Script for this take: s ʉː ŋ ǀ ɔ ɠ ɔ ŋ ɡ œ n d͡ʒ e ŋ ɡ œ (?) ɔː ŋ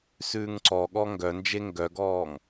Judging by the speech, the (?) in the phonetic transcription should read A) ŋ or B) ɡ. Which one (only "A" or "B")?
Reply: B